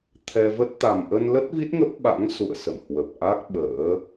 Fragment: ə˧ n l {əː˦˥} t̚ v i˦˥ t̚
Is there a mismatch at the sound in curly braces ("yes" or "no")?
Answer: yes